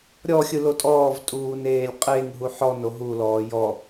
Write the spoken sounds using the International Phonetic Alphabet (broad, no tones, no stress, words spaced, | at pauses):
ɾʲɔxʲɯlo tʼɔːvtʼuːneːlʲ qʼeŋɦu ħɔno ɦulɔː jɔ